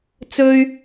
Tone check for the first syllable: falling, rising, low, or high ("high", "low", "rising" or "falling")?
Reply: high